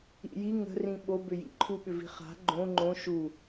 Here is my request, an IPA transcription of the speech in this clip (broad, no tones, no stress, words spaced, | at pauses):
ḭji ŋə̤rĩ ɓobʏ jḭǃʰuɓʏvi̤ χa̤ ɡ͡ǃõ ŋ͡ǃõ ʃu